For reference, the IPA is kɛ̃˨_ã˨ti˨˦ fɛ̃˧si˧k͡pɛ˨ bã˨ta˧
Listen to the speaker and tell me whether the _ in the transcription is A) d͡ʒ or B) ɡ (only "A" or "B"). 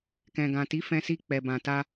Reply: B